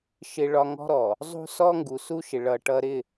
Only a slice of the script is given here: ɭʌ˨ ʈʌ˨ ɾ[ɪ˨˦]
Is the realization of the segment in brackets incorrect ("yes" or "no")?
yes